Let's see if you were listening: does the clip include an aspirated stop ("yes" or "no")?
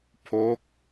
yes